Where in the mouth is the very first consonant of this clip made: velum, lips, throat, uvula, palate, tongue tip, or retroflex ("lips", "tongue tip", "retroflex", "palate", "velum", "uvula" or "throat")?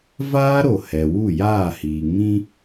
lips